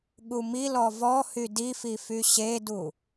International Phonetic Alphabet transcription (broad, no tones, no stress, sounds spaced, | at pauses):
ɠ u m i l ɔ v ɔ h y d i f i f y ɕ e d u